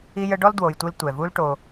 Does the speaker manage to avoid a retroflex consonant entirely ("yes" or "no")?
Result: no